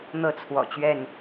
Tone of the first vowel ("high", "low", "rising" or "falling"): falling